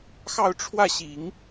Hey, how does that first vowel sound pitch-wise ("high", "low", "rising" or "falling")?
falling